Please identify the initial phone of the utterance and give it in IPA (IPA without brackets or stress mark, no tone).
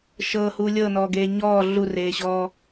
ʃ